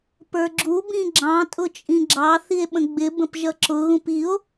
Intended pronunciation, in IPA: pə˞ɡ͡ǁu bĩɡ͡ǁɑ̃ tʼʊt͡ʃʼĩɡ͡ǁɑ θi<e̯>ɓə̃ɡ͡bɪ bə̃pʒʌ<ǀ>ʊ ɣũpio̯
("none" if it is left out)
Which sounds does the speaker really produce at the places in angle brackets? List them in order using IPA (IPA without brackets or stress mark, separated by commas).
e̯, ǁ